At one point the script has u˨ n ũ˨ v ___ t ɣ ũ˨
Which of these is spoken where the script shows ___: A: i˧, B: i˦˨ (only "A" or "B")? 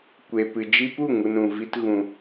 A